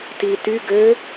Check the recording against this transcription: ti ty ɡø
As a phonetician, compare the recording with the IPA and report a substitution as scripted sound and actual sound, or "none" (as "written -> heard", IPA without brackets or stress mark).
none